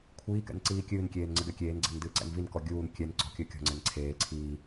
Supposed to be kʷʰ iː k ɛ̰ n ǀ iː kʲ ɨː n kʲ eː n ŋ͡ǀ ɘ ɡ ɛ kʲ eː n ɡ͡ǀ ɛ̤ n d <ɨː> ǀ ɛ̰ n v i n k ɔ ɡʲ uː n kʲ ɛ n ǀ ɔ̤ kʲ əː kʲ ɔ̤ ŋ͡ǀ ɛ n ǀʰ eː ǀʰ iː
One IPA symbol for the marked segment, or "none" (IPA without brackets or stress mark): ɨː